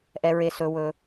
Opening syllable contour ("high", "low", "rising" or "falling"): low